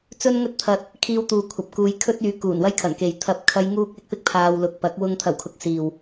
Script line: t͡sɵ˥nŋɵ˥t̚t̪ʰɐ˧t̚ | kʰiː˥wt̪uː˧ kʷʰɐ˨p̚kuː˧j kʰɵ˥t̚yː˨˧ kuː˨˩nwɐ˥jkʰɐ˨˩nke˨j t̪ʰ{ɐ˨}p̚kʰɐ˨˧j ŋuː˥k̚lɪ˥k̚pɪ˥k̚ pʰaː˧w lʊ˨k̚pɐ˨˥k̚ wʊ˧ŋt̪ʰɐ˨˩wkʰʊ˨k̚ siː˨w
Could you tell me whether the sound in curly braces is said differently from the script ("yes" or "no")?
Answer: no